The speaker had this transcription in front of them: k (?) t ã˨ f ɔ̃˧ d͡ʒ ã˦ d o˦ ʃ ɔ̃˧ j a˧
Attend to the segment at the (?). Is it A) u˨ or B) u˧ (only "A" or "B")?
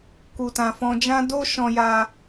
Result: A